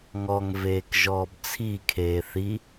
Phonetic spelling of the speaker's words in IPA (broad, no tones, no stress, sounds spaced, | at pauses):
ŋ ɔ ŋ v eː k ʒ ɔː b t͡sʰ i kʰ eː θ i